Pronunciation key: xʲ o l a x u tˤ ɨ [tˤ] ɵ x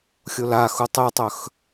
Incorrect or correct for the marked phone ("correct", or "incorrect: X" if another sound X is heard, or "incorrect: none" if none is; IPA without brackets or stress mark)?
correct